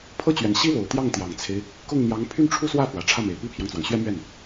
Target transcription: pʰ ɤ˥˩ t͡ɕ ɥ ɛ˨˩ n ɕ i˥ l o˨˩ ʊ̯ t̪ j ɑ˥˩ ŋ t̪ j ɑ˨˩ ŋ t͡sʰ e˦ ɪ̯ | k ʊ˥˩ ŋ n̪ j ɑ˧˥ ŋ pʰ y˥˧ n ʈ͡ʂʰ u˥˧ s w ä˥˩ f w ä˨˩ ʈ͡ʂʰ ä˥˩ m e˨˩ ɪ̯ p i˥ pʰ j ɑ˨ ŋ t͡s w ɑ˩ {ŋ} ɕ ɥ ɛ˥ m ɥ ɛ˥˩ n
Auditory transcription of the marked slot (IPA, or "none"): ŋ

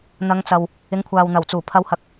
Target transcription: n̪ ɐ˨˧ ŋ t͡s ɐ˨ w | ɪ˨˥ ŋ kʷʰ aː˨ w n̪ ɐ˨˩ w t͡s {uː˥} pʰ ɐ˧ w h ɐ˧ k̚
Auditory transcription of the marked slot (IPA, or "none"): uː˨˩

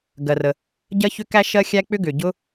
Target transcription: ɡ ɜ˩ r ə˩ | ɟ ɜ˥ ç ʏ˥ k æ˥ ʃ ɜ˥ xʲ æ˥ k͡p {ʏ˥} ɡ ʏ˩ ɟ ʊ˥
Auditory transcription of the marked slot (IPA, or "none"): ʏ˥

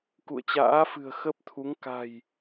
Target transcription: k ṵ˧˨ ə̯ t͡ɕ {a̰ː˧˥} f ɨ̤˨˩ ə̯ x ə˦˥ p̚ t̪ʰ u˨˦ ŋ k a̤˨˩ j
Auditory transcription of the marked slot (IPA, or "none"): a̰ː˧˥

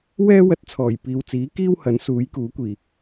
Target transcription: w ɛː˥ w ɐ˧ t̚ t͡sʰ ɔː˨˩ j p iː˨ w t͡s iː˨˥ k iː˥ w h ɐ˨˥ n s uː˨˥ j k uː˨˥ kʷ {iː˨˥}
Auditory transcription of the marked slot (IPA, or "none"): iː˨˩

